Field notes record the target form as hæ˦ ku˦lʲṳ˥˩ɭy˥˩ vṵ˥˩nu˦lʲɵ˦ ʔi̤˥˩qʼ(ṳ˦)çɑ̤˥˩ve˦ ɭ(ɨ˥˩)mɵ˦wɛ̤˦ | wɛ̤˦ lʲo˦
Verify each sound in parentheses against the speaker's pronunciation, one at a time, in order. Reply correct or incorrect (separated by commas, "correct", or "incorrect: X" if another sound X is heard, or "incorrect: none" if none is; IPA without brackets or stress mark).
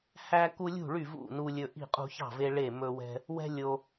correct, incorrect: e˥˩